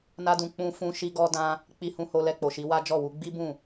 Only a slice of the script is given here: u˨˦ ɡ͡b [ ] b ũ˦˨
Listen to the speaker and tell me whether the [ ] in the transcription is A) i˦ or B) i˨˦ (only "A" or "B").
A